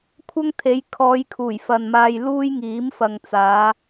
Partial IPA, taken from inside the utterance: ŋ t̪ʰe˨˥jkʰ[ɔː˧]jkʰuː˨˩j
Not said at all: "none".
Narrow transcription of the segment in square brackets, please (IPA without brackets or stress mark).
ɔː˨˧